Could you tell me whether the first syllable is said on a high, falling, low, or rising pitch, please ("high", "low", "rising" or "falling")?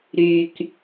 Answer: low